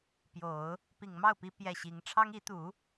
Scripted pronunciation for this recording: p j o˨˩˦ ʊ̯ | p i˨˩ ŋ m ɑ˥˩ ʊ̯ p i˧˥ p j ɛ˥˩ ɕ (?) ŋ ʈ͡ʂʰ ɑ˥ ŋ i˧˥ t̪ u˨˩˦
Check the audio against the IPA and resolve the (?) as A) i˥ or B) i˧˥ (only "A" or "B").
B